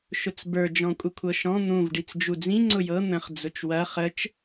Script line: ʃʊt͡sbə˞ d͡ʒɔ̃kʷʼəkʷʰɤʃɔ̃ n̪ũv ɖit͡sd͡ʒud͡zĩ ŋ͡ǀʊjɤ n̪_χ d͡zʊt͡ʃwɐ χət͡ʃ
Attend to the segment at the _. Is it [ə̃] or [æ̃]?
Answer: ə̃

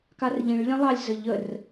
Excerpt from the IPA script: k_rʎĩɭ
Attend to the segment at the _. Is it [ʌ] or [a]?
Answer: a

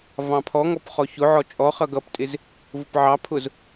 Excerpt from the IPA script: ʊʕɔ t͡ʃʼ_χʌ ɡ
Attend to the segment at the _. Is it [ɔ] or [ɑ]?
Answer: ɔ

